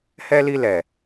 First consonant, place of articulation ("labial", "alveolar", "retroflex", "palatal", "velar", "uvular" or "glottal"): glottal